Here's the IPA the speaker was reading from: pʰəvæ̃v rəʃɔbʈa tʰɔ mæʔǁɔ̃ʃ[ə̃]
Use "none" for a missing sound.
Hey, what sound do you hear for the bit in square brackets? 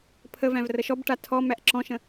ə̃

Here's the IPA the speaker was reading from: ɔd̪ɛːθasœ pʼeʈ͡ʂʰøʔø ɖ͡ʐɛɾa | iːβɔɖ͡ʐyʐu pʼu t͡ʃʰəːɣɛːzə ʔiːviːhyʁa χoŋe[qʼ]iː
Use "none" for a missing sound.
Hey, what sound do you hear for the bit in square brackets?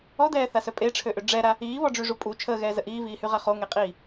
qʼ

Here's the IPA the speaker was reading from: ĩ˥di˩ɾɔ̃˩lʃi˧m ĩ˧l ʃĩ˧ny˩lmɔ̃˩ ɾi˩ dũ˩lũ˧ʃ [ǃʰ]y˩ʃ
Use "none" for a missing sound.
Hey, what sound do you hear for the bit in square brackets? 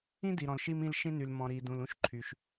ǃʰ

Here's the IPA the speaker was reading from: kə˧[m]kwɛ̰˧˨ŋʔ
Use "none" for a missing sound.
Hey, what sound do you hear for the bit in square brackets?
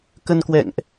n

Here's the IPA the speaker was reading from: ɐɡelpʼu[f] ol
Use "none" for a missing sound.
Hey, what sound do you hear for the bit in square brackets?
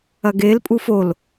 f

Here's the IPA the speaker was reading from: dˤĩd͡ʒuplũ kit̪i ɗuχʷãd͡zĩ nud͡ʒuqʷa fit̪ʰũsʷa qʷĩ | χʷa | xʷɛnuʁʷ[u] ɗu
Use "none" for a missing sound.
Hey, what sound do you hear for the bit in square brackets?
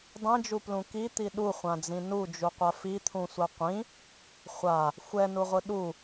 ɯ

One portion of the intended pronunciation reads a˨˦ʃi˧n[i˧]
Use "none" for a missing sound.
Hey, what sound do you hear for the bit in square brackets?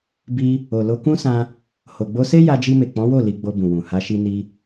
i˧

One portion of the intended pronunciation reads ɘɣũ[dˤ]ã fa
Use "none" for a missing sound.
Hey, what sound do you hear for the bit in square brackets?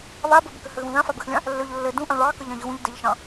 ð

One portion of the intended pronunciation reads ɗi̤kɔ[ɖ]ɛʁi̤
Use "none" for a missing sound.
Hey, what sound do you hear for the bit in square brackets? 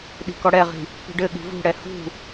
ɽ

